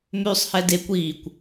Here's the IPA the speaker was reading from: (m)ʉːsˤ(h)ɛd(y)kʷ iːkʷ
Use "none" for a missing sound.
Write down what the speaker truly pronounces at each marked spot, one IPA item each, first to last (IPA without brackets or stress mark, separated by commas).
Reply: m, h, e